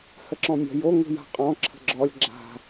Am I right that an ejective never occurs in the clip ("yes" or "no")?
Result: no